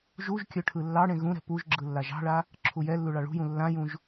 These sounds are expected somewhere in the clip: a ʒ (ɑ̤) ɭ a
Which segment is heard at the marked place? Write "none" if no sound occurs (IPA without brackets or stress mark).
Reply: ɑ̤